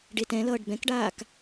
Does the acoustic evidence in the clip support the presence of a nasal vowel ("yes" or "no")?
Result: yes